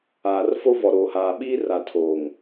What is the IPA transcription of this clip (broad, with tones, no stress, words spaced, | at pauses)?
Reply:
aː˨rfo˦vɔ˨ ɾoː˨haː˨ɓiː˦ ra˨tʰoː˨ŋ